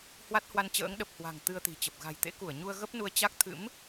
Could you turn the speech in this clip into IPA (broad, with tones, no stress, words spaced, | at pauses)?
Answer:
hwa˦˥t̚hwa˧nt͡ɕə̰ː˧˥ŋ ɗə˨˩p̚ hwa̤˨˩ŋ t̪ɨ˧ə̯t̪i̤˨˩t͡ɕə˨˩p̚ ɣa̤˨˩jt̪ḛ˧˥ku˧˩ə̯ɲu˧ə̯ ɣə˦˥p̚nu˧ə̯ t͡ɕa˦˥k̚t̪ʰɨ̰˧˥m